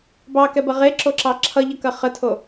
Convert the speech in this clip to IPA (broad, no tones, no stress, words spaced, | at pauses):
bɑkɛbɐ ʁeǁoǁɑ ǁʰʌʎʌkɐ χətʰo